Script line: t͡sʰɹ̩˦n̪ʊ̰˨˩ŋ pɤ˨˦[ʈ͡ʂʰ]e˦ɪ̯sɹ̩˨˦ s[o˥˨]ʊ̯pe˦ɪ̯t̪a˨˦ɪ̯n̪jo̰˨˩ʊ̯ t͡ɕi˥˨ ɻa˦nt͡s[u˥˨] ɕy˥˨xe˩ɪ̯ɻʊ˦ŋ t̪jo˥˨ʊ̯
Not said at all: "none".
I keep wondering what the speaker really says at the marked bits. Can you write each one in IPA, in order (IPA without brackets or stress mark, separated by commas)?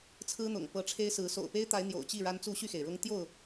ʈ͡ʂʰ, o̰˨˩, u˥˨